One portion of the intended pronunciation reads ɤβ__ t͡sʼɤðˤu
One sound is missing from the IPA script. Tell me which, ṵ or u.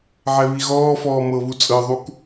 u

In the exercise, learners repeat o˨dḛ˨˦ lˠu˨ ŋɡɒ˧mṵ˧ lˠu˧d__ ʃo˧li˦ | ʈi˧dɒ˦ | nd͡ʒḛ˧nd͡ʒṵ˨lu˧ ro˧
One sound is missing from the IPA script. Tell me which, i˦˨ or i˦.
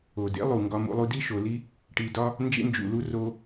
i˦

